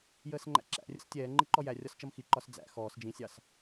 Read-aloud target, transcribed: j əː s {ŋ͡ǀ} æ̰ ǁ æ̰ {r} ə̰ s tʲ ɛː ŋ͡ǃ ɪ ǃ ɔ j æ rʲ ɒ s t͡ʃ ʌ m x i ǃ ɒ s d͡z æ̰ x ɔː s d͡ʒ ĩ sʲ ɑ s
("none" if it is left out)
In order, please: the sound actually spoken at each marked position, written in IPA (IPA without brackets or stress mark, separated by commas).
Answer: ŋ͡ǃ, rʲ